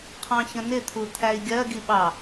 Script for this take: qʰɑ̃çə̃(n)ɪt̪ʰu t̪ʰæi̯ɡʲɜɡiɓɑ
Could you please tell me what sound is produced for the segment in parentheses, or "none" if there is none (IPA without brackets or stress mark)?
n